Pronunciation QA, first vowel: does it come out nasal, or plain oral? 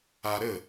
oral